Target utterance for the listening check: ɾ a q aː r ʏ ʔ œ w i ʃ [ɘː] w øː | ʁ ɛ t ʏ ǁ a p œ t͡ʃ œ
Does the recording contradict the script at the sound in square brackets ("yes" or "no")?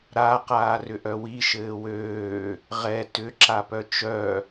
no